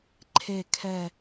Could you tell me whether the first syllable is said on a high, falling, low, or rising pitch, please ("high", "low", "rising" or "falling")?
low